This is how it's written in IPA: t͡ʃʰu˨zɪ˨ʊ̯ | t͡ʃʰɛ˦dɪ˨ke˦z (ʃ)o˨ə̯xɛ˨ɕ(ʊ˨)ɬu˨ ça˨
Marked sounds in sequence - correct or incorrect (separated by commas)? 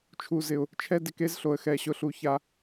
incorrect, correct